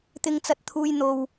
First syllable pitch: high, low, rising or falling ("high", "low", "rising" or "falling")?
high